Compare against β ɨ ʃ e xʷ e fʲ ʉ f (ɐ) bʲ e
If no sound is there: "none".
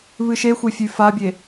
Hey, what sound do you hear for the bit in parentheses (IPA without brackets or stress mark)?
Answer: a